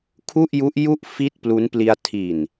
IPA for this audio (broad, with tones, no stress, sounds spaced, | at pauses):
kʰ u˥˩ ʔ j u˦˥ ʔ j u˥˩ ʔ f i˥˩ t̚ p l u˦˥ n p l i˧ a̯ tʰ i˨˩ n